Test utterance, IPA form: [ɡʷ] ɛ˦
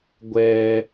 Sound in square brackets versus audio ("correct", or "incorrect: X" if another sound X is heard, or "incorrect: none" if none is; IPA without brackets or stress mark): correct